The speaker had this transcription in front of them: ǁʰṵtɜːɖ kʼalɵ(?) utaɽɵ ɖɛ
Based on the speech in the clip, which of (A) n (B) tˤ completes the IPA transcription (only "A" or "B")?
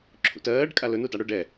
A